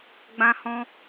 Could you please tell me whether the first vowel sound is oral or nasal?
nasal